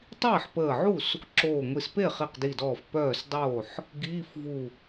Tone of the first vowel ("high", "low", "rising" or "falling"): falling